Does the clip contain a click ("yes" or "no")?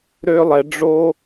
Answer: no